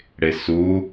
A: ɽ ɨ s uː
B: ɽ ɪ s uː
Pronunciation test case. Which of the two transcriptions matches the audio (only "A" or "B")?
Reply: B